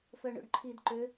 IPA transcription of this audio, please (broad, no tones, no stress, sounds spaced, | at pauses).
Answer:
f œ ɳ o̰ ɖ ǃʰ i d ǃ ø